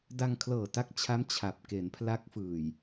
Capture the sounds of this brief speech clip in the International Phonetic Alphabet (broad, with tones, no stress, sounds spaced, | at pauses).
d a˧ ŋ kʰ l ɤː˨˩ t a˦˥ k̚ t͡ɕʰ a˦˥ m t͡ɕʰ a˨˩ p̚ k e˩˦ n pʰ l a˦˥ k̚ f ɯː˨˩ j